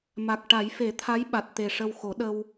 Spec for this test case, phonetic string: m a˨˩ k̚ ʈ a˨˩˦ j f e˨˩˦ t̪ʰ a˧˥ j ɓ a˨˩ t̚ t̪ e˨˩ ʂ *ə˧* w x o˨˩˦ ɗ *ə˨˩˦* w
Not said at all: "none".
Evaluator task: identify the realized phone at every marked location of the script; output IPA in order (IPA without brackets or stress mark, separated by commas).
ə˧, ə˧